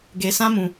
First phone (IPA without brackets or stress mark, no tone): ɡ